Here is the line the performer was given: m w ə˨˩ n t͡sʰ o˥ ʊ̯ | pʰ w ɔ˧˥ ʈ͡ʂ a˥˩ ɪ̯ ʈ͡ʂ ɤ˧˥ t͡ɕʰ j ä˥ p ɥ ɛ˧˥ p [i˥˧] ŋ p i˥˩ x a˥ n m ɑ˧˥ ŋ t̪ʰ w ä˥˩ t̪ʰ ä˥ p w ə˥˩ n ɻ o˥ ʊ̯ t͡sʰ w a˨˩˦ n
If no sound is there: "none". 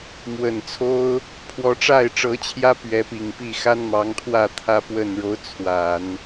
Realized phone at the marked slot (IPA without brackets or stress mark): i˨˩